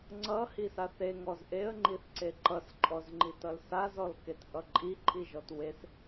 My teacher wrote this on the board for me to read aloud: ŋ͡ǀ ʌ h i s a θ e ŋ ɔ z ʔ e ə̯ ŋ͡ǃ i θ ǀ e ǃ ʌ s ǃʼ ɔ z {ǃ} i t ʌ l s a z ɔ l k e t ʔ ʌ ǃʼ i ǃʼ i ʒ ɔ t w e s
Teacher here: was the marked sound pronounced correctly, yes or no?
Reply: no